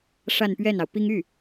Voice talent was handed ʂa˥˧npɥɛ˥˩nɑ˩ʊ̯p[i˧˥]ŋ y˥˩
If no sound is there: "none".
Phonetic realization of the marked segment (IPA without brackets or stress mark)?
i˥